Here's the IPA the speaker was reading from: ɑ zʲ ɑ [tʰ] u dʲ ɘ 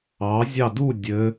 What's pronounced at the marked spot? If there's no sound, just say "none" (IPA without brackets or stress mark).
d